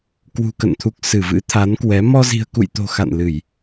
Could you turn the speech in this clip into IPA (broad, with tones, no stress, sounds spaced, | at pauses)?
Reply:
k w ṳ˨˩ k ə̰˧˨ n t̪ʰ u˨˩ k̚ s ɨ˧˩ v ɨ̰˧˥ t̪ʰ a˨˦ n k w ɛ˨˦ m ɔ˧ z i̤˨˩ ə̯ k ṵ˧˨ j t̪ o̤˨˩ x a̰˧˨ n l ɨ˧˩˨ j